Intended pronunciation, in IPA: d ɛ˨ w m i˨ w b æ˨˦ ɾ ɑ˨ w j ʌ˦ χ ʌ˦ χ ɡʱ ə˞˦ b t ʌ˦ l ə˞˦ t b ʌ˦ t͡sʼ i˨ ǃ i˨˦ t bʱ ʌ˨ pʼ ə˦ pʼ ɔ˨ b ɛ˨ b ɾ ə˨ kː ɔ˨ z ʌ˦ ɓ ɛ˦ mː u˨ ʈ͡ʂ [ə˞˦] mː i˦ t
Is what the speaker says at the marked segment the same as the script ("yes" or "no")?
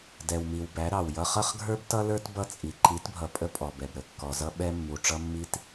no